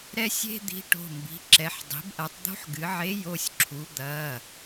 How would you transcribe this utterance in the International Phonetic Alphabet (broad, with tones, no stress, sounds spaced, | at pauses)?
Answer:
ɾ ɛ˦ sʲ e̤˦ d̪ i̤˨˥ ʈ o̤˩˧˩ m b i̤˩˧˩ ǁ ɛ˩˧˩ ħ dˤ i̤˩˧ b ʔ ɐ˩˧ tˤ d̪ o̤˦ ħ ɡ ɨ˩˧ ʕ e˨˥ j o˩˧˩ sʲ ǁʰ u˩˧ d̪ ɐ˩˧˩